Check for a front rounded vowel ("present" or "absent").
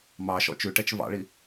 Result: absent